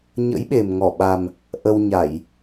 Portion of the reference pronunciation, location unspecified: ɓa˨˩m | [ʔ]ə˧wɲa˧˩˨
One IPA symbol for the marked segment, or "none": ʔ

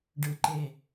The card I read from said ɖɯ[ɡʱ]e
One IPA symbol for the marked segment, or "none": ǃ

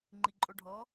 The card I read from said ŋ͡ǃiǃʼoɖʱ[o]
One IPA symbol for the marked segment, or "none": ɔ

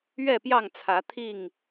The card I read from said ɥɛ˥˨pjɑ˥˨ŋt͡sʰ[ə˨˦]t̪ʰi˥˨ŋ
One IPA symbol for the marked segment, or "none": ä˨˦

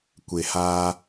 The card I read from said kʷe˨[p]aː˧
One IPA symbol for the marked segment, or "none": h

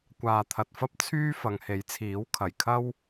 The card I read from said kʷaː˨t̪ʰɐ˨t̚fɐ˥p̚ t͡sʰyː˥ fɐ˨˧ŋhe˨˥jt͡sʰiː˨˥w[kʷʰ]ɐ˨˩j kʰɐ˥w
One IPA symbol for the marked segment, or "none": kʰ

